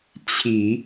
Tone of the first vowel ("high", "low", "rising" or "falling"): low